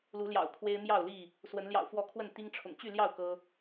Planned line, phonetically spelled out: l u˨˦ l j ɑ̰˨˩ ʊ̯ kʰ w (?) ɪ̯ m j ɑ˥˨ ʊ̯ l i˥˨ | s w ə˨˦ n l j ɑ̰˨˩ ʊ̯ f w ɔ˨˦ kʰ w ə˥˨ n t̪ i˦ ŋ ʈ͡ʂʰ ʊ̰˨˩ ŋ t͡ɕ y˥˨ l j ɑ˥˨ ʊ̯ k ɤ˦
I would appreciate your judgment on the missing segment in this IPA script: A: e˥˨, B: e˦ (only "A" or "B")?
B